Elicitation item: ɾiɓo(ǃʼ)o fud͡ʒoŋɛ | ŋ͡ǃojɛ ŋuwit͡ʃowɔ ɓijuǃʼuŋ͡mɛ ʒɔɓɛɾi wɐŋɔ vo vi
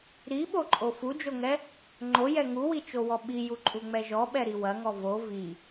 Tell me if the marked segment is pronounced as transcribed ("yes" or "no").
yes